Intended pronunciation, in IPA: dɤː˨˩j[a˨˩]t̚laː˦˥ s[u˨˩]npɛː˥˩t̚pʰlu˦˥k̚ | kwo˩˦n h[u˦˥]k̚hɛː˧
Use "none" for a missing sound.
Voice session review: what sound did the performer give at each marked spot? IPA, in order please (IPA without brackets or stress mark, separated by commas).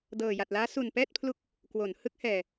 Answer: a˨˩, u˨˩, ɯ˦˥